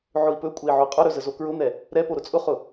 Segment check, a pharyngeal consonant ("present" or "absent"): present